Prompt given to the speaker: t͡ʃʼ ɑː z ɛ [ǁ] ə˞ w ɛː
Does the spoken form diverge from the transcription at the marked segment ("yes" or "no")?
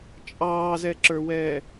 no